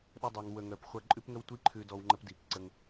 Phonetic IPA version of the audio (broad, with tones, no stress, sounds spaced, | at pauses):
ɗ ə˦ dˤ œ˧ ŋ w ə˧ ŋ œ˧ p χʷ ɐ˦ ǃʼ ʉ˦ p ŋ ə˦ w tʷ i˦ ǃʰ ʉ˧ d ɔ˧ w ŋ͡ǃ ə˧ p d i˨ k ǀ ə˧ ŋ